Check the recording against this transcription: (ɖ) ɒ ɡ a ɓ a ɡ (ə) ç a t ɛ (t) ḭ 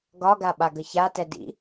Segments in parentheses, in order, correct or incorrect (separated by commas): incorrect, correct, incorrect